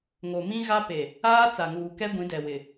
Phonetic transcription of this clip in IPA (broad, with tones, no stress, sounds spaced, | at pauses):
ŋ o˨ m ĩ˦ ɣ a˦ p e˨ | aː˦ t͡s a˨ ŋ uː˨ k ɛ˦ ɡʷ ĩ˨˦ d ɛ˨ w ɪ˨